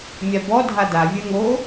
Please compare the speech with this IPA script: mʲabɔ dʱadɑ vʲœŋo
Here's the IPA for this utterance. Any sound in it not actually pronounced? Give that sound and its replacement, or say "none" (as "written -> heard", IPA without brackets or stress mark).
ɑ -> a